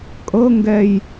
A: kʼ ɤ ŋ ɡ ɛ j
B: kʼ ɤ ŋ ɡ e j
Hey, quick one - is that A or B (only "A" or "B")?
A